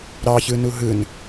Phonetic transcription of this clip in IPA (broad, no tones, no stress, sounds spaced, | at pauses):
ɾ ɑ ç ɯ n u ɦ ɯ n